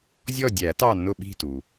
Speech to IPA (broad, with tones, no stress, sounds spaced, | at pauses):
zʲ ɔ˦˨ dʲ æ˨˩˦ t ɑ˦˨ nː ʊ˦˨ ɓ i̤˦˨ t u˩